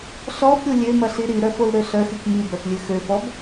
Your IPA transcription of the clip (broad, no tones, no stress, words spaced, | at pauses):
ɬɔbɾʲo lʲømɐɬi ɾiɾœfolɾø ɬœxyk mibœflʲø xøfɔb